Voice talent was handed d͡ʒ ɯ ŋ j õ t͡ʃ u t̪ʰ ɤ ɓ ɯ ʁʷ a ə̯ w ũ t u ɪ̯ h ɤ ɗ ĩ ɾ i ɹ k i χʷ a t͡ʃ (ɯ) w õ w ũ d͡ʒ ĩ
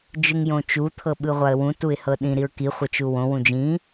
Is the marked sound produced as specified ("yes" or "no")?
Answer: no